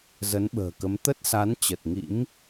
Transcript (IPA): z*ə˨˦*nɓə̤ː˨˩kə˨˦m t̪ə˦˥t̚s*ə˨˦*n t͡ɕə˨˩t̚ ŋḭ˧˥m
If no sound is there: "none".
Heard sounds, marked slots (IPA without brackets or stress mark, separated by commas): ə˨˦, a˨˦